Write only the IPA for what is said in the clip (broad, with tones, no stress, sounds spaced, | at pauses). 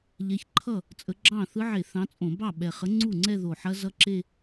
ʎ ɛ˨˦ ç ǃʰ ʌ˥˩ | t͡sʼ ə˨˦ ɡ͡ǁ ɑ̃˥˩ θ ɯ˦˥ ʕ e˧˩˧ θ ɑ̃˨˦ t͡sʼ õ˧˩˧ b ɑ˥˩ ɓ ɛ˨˩ χ ə˨˦ ŋ͡ǀ u˥˩ ŋ͡ǀ ɛ˥˧ ð o˨˩ ħ ɐ˦˥ z ʌ˦˥ ǁ e˥˧